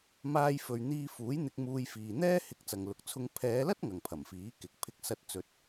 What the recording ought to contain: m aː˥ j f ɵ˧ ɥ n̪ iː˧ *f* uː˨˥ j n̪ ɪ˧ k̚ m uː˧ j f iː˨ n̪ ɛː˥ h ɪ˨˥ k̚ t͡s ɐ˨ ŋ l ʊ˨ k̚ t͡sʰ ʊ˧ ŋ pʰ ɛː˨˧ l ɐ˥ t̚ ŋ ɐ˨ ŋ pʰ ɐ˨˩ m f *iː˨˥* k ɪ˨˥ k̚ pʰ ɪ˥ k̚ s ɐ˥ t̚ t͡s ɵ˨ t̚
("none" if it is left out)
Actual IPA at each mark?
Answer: f, iː˨˥

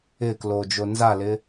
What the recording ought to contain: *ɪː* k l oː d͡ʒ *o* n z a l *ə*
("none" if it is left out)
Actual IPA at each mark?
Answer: ɪː, o, ɪ

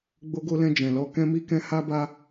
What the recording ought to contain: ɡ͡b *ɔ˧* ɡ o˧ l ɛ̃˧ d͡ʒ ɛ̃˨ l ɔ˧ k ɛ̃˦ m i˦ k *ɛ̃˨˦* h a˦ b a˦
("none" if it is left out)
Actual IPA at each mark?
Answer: o˧, ɛ̃˦

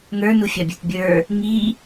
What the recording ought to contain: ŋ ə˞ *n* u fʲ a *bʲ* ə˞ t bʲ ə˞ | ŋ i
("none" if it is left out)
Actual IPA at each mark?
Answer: n, bʲ

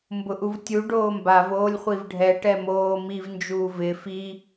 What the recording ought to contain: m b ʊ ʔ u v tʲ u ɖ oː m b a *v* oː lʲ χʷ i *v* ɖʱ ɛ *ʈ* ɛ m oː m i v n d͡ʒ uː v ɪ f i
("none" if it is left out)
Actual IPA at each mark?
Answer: v, v, ʈ

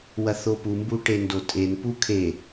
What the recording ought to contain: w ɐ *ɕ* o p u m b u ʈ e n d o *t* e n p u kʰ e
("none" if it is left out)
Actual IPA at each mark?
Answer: θ, tʼ

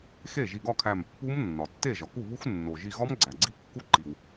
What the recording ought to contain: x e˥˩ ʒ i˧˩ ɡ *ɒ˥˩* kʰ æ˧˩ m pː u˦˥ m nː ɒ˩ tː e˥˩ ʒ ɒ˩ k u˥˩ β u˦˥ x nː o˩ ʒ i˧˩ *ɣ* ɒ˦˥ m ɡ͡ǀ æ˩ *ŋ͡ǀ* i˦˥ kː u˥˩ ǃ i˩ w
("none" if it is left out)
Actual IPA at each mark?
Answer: ɒ˥˩, ɣ, ɡ͡ǀ

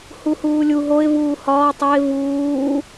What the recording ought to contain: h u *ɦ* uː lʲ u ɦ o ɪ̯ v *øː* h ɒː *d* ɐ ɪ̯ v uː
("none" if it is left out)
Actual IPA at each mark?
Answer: h, uː, tˤ

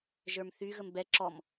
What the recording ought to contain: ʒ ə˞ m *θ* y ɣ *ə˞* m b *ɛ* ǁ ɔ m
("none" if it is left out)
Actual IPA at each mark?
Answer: θ, ə, ɛ

